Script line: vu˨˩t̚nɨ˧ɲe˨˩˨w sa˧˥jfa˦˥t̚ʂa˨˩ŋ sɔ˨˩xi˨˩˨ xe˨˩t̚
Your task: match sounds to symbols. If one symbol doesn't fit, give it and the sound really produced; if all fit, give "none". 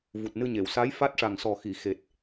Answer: none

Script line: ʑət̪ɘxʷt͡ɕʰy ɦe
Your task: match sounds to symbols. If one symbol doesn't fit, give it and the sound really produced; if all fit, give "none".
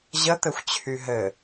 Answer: e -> ɘ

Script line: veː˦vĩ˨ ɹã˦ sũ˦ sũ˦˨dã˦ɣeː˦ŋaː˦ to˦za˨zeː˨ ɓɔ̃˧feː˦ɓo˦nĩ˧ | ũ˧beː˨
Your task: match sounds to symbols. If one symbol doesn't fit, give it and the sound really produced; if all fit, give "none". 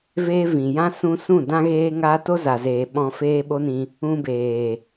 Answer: ɹ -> j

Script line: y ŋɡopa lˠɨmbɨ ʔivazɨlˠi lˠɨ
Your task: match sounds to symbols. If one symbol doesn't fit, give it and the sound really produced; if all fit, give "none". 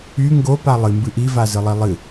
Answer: none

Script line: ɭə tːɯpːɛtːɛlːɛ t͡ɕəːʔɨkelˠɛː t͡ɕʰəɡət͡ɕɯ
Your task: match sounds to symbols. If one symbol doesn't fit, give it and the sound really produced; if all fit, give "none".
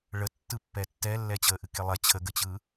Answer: ɛː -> ɛ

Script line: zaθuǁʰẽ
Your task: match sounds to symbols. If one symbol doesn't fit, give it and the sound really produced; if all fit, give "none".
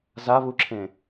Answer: θ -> β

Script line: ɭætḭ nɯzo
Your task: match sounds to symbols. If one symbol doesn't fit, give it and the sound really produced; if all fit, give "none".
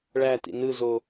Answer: none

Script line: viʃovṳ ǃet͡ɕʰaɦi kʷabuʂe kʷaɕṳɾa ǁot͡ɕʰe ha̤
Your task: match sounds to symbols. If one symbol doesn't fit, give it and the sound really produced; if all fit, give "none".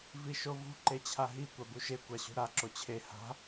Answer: ʂ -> ʃ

